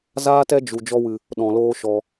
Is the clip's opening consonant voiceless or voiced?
voiced